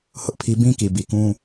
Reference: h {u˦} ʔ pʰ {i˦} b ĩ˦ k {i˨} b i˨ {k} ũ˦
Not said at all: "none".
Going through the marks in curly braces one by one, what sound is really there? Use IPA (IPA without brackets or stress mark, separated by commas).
ʊ˦, i˦, i˨, k